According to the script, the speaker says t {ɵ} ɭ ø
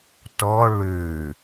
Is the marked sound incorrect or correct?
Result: incorrect: ɔ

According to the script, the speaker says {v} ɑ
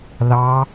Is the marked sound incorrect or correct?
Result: incorrect: ð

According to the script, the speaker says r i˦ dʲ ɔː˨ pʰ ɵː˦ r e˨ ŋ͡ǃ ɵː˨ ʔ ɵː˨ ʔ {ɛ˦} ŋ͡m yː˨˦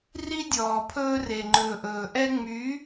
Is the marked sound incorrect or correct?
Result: correct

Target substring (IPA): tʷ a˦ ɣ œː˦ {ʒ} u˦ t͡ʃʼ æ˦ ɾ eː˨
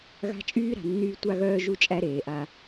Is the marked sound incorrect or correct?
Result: correct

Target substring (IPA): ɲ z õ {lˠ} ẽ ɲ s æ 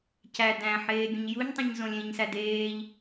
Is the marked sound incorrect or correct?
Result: incorrect: lʲ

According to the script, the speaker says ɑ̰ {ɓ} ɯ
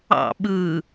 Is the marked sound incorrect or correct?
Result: correct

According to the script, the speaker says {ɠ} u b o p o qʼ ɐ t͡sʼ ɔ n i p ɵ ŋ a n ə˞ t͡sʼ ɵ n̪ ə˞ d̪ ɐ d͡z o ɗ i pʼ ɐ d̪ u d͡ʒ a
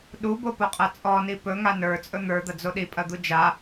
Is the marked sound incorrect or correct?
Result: incorrect: ɗ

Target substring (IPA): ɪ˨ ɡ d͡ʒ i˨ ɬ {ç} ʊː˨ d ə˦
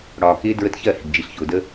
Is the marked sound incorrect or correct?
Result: correct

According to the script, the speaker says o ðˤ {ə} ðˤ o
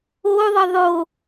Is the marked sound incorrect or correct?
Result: correct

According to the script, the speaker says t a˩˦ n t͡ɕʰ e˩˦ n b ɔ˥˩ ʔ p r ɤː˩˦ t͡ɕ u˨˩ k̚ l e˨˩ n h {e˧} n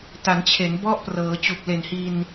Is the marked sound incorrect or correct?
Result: incorrect: i˧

